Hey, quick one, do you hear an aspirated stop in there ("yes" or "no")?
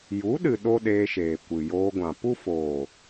no